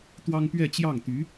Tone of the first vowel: high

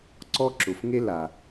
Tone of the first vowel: high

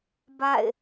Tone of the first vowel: falling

